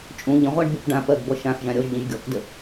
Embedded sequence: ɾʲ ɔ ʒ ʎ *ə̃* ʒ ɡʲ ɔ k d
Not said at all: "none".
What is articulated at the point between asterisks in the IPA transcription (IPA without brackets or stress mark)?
ə̃